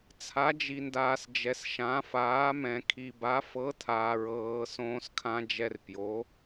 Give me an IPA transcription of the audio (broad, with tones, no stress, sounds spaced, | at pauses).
t͡sʰ a˧˥ d͡ʒ i˧ n d aː˧ s d͡ʒ ɛ˧ s ʃ ã˧˥ f aː˧˥ m ɛ̃˧ kʰ i˧ b a˧˥ f ɤ˧˥ tʰ aː˧ ɹ ɤː˧ s õː˧ s kʰ ã˧ d͡ʒ ɛ˧ r p j o˧˥